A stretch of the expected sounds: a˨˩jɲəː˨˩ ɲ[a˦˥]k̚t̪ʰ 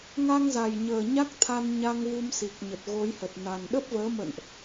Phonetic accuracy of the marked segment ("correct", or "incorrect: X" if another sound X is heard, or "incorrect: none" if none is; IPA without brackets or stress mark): correct